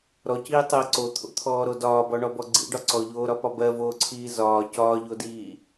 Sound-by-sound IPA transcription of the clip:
ɾ ɔ c iː tˤ ɜ ǀ o t̪ʰ o̰ t̪ʰ ɔː ɾ o d ɒː b ɔ ɳ ɔ b ɔ ɡ͡ǀ ḭ ɖ ɒ ǀ ɔ ʎ oː ɾ ɒ p ɒ b ɜ v oː ǀʰ iː z ɒː c ɒː ʎ o d iː

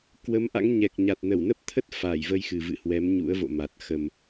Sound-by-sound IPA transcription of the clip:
k w ə˨˦ m ʔ a̰˧˥ ŋ ɲ ɛ˨˩ k̚ ɲ a˨˩ t̚ n ə˧˩ w n ə˦˥ p̚ t̪ʰ ə˦˥ t̚ f a˧˩ j v ə˧ j x ɨ˨˩ v ɨ̰˧˨ h w ɛ˨˦ m ɲ ṵ˧˥ ə̯ v o̰˧˨ m a˨˩ t̚ x ə˨˩ m

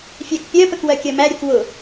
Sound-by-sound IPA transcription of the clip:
fʲ æ k pʲ ɜ p ə k w ɜ kʲ ɜ m æ ɾʲ u k w ʊ

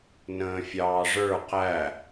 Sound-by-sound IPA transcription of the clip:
n ə̃ː fʲ ɑː ʐ ə˞ q æ

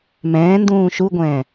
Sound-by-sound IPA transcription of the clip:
m ɛ̃ː n d ũː ʃ u ɡʷ ɛ̃ː

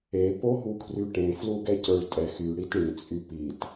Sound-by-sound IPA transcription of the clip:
e p o ɦ u kʰ r y ʈ ẽ f l u ɡ ɛ c ə˞ ɭ tʼ ɛ x y ɽ i t ɽ ĩ t͡sʼ y p i t

